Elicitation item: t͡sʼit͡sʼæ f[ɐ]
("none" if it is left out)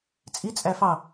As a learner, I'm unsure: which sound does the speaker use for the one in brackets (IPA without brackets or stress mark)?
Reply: ɑ